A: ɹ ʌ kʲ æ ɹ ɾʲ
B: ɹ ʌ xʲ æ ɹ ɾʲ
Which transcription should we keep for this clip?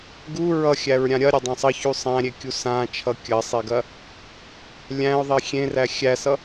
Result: B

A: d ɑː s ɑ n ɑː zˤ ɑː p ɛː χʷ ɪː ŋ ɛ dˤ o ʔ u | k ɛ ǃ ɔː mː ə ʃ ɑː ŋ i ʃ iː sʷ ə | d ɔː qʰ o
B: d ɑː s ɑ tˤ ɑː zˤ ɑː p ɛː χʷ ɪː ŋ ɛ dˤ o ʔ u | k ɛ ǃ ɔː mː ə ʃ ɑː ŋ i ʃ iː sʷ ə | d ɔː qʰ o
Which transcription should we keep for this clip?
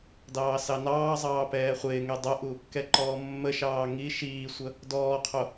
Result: A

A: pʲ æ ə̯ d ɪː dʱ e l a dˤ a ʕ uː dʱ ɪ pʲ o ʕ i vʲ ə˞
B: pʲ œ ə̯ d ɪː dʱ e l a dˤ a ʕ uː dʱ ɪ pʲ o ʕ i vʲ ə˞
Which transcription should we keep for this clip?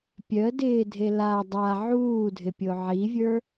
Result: B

